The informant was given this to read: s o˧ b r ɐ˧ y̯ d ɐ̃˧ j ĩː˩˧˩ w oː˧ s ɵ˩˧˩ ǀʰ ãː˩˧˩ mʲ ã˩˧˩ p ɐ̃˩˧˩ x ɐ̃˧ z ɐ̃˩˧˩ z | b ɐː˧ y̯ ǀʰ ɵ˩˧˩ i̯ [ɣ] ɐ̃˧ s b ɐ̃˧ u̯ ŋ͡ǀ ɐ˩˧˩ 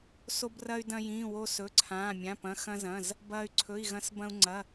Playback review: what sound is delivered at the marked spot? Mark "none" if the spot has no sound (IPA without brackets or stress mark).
ɣ